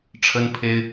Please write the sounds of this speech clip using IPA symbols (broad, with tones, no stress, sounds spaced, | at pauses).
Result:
ʈ͡ʂʰ ə˥ n pʰ e˥ ɪ̯